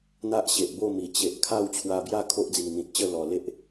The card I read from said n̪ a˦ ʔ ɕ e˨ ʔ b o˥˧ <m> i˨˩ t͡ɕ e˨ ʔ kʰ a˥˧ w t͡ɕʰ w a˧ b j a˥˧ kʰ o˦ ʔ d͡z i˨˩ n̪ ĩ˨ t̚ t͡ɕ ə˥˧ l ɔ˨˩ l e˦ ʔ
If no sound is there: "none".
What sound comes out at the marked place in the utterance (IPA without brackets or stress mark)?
m